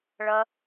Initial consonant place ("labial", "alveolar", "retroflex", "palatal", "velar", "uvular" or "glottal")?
retroflex